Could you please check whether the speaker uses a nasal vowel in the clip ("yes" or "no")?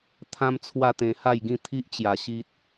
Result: yes